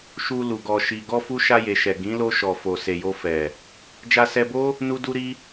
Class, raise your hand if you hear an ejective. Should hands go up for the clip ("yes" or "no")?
no